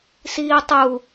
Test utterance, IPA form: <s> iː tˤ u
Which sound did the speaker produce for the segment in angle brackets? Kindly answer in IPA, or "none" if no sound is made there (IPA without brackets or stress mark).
s